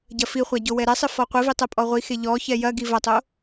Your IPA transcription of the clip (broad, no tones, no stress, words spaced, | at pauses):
ɟɐfiχʷa ɟowɛɾɛsˤɨ fɔqʷɨvi tˤɛpʼɔʁʷixe ʎɔ çɛjɐɡi vɐtˤo